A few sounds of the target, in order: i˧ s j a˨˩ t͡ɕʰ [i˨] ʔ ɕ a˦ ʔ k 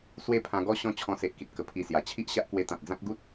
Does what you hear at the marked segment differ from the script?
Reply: yes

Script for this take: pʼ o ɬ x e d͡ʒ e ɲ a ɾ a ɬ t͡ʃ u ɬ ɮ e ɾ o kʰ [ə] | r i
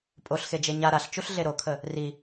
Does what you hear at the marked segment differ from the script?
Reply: no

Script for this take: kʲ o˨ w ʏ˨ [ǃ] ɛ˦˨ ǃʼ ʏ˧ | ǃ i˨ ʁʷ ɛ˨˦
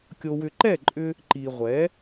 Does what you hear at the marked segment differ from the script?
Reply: no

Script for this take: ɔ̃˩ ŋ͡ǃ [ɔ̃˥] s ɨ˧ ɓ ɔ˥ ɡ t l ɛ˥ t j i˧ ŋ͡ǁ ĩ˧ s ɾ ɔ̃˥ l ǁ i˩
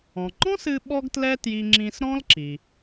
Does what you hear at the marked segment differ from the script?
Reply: no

